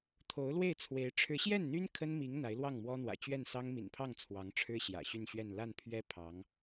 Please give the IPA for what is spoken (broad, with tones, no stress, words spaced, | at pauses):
t̪ʰo˧˥ʊ̯lwe˥˩ɪ̯t͡sʰwe˧˥ɪ̯ ʈ͡ʂʰɻ̩˧˥ɕjɛ˥˩nn̪y˥n kʰə˥nmi˧˥ŋ n̪a˧˥ɪ̯lwɑ˥˩ŋmwɔ˥n̪wä̰˨˩ t͡ɕɥɛ˥˩nsɑ˥ŋ mḭ˨˩npʰɑ˥˩ŋ t͡sʰwɑ˧˥ŋʈ͡ʂʰɻ̩˥ ɕjä̰˨˩ɕy˥˧nɕɥɛ˥˧n la˥˩npʰɥɛ˥ pʰɑ˧˥ŋ